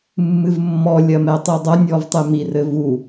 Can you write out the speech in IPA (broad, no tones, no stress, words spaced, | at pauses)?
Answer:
mːɨvmːɔ lʲɐmɛtˤidˤɐ nʲɔvtˤemi rɘvu